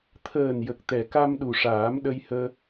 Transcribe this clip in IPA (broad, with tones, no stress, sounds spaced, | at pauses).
t̪ʰ əː˨˩ n j ə˨˩ k̚ t̪ ɛ˨˩ k a˧ m ɗ u˨˩ ʂ aː˨˩˦ m ɗ ə˧ j h əː˧